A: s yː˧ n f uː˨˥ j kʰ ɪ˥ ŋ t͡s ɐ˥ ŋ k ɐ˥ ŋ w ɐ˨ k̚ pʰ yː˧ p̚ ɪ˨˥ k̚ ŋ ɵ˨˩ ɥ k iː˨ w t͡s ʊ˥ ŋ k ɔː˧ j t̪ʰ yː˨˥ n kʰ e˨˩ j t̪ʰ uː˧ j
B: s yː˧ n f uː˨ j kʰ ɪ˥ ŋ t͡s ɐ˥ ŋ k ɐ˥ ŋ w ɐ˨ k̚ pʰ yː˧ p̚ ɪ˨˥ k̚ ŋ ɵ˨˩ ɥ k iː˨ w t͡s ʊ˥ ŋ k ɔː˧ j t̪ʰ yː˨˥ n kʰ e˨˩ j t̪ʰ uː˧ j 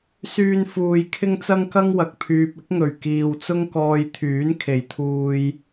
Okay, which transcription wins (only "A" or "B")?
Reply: B